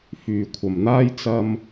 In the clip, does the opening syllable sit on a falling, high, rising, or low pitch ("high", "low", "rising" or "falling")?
low